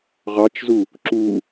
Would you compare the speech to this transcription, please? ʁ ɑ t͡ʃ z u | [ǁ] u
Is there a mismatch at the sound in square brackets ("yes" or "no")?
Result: no